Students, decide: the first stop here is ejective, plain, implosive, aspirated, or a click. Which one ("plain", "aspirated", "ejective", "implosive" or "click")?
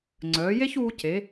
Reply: click